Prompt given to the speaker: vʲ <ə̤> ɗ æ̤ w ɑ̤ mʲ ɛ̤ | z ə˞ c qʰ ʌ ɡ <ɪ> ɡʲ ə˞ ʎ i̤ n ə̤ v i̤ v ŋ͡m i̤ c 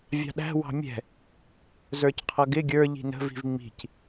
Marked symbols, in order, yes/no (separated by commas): no, yes